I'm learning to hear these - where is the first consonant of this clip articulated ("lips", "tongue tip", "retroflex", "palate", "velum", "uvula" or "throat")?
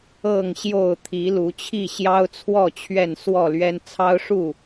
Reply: velum